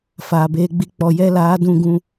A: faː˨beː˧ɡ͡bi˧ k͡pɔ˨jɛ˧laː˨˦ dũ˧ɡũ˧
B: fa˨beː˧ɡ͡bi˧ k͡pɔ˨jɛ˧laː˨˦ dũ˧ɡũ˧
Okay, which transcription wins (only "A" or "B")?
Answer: A